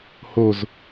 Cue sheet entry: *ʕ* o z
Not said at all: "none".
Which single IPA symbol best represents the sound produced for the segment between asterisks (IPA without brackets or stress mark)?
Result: h